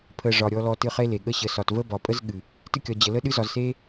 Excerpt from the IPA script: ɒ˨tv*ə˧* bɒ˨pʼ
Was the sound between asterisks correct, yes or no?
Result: no